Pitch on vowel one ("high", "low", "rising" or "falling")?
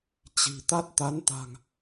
low